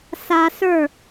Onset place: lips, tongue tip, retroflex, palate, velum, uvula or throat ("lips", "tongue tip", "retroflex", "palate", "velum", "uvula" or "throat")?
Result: tongue tip